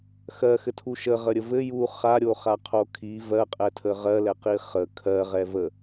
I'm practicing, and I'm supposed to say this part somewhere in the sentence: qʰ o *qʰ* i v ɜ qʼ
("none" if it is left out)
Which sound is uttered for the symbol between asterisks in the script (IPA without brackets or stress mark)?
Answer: kʰ